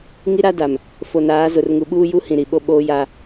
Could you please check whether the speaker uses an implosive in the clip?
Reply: yes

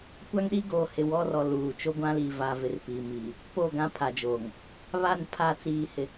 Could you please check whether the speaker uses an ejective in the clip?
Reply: no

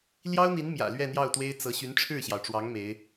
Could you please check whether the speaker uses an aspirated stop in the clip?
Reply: yes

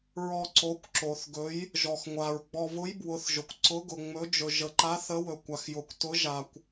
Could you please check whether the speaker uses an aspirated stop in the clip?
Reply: no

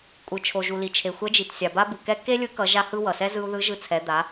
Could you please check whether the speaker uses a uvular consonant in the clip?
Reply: no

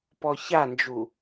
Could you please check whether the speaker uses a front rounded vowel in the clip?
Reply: no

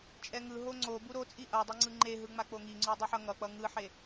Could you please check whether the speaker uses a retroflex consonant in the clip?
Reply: no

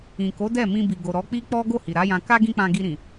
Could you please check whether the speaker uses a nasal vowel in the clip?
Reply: yes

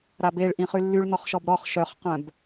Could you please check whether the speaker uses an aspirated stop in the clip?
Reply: no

